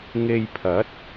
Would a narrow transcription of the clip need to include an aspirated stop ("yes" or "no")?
yes